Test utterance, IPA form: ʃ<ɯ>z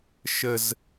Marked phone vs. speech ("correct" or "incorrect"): incorrect